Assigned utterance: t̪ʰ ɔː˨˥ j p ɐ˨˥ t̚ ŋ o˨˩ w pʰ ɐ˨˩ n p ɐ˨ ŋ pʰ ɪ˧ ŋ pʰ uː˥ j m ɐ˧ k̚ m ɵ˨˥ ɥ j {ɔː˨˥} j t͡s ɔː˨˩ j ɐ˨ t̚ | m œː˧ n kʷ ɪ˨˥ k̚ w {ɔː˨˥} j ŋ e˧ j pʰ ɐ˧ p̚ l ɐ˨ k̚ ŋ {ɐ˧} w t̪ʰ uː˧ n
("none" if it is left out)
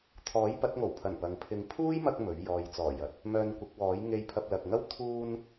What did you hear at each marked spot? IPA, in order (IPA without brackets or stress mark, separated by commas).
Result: ɔː˨, ɔː˨˥, ɐ˥